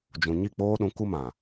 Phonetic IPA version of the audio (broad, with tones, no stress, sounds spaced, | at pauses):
d͡ʒ ũ˨ ɲ i˦˨ k͡p oː˦ ɗ ũ˨˦ k u˦ m ã˨